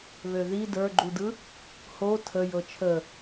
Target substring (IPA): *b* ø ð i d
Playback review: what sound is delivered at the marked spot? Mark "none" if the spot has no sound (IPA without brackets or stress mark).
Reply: β